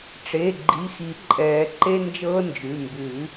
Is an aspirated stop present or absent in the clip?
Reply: absent